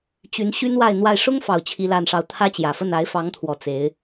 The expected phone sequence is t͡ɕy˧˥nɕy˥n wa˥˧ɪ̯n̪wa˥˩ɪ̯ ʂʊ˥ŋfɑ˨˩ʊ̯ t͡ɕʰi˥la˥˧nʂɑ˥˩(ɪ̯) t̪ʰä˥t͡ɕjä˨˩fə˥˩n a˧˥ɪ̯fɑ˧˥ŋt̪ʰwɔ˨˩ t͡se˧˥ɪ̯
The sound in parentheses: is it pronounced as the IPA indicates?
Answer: no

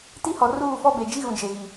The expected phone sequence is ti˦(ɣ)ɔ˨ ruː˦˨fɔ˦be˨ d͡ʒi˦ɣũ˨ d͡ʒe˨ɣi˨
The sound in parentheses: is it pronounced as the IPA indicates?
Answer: no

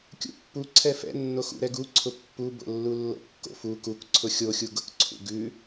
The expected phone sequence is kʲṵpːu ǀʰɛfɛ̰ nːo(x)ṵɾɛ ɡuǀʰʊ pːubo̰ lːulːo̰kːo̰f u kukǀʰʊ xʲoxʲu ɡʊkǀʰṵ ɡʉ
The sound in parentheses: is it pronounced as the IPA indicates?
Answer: yes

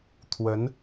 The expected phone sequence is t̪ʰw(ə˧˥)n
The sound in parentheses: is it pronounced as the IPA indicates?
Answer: yes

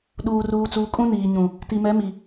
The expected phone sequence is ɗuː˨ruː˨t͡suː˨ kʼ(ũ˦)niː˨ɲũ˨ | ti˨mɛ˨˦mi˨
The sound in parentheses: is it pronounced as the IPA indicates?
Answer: yes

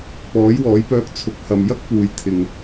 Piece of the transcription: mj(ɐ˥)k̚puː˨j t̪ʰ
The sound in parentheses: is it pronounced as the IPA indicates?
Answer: yes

